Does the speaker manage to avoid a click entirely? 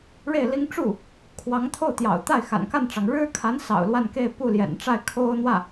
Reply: yes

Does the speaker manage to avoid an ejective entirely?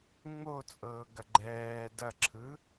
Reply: no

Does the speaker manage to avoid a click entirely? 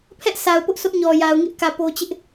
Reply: yes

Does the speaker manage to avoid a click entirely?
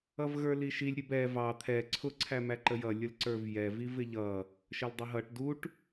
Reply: no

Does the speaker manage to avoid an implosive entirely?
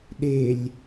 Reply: no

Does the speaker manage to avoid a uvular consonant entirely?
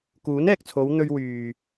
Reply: yes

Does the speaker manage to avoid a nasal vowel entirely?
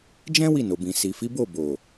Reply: no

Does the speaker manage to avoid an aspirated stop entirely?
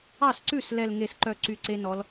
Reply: yes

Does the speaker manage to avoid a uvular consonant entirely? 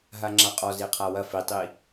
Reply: no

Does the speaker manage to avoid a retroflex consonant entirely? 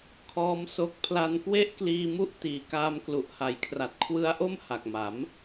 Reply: yes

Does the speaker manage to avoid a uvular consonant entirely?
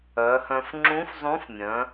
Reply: yes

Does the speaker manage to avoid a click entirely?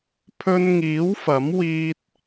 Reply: yes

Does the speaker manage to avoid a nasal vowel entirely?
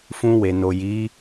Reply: no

